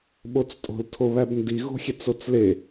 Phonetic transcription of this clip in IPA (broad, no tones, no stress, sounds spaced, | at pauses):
ɓ o t͡s tʼ o̤ l tʰ o β æ b n d i ɣ o̤ xʲ e t͡s o t͡s l e